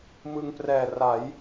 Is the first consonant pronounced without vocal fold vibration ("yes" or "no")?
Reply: no